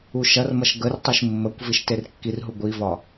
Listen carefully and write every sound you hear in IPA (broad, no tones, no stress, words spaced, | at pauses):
uʃɐrmɐʃ ɡərtˤiʃ mːəkʷ viʃterkːirɦu ɡʷivɒ